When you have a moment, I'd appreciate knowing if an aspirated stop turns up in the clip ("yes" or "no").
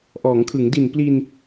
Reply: yes